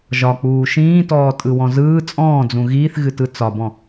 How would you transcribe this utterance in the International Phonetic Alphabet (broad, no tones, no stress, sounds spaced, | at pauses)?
ʒ ɒ k͡p uː ʃ ĩː t ɔː tʼ ɯ w ɔ̃ z ɯː t͡sʼ ɔ̃ː d͡z ũ ɣ iː θ ɣ ɨ t ɯ t͡s ɒ b ɔ̃